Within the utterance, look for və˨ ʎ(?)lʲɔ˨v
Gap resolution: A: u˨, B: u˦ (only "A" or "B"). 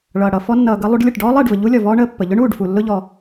B